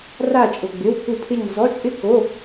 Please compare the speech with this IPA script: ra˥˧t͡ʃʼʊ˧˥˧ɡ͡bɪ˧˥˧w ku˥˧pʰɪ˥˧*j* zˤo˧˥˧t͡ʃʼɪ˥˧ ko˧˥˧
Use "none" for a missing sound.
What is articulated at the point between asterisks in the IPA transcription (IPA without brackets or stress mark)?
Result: ɲ